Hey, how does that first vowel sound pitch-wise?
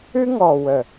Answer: high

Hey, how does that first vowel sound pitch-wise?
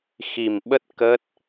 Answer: low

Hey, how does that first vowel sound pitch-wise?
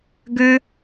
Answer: high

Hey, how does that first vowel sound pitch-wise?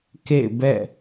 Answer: falling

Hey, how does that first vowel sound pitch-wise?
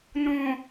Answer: low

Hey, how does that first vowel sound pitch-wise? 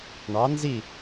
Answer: rising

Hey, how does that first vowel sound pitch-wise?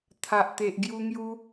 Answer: low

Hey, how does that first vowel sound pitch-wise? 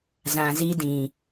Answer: low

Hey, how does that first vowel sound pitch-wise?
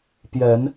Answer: rising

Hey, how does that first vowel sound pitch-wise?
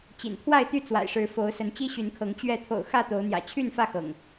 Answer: low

